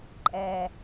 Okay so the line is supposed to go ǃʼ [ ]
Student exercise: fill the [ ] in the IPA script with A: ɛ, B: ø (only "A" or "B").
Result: A